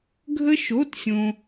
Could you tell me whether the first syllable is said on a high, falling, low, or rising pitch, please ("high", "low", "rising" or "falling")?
high